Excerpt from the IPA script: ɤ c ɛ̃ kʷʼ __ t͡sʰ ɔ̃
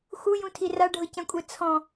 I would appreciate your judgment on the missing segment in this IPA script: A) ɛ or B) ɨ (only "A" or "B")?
A